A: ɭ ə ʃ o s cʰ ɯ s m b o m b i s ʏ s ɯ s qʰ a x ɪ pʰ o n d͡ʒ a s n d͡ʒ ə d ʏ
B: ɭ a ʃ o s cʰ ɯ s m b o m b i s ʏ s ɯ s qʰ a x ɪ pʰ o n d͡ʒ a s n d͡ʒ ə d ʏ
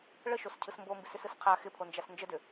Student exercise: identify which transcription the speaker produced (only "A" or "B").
A